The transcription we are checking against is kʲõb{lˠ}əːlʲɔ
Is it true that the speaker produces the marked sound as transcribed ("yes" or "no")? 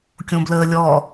no